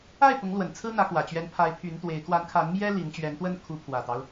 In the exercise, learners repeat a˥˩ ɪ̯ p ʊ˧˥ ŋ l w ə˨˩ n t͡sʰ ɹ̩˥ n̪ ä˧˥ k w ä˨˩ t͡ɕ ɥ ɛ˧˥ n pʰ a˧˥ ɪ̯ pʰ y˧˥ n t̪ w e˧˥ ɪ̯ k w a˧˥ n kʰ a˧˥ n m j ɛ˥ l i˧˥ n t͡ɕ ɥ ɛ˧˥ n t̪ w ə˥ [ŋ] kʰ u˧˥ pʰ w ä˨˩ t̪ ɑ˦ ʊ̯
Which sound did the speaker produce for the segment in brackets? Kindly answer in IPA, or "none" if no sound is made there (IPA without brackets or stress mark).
n